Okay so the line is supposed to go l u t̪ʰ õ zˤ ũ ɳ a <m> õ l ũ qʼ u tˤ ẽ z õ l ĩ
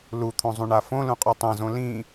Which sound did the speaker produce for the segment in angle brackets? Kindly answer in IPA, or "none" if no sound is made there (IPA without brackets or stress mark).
f